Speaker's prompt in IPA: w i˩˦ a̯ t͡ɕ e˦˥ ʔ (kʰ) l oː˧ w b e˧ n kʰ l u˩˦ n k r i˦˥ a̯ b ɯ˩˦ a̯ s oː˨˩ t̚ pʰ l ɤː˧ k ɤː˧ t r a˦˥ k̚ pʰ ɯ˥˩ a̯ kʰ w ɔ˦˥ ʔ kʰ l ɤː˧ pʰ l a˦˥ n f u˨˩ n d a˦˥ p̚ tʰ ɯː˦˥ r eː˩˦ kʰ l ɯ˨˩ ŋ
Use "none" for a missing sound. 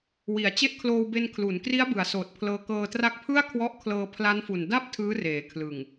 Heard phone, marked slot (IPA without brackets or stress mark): kʰ